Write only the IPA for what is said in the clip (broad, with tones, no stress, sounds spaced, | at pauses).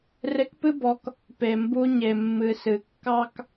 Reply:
r e˧ k p ɨ˦ b ɔ˨˦ k | p e˨ m b u˧ ɲ e˨ mː ɨ˨ s ɨ˨ kː ɑ˦ k